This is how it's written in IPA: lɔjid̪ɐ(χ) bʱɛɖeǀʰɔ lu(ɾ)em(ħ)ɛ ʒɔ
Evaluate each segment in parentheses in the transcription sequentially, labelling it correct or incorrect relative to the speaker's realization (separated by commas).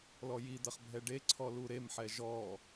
correct, correct, correct